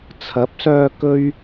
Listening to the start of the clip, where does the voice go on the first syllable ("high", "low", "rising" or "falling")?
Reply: rising